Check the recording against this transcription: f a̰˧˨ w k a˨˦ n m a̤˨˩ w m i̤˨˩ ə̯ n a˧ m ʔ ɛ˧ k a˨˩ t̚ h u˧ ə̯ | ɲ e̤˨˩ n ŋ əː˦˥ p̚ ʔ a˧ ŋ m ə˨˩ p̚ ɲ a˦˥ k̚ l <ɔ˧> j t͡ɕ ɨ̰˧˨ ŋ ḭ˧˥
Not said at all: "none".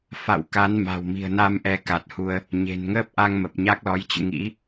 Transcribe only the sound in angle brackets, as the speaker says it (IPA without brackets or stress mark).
ɔ˨˦